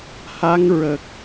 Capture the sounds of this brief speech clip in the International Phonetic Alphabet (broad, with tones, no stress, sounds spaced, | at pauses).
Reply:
h a˧˥ ŋ ɹ ə˨˩ k̚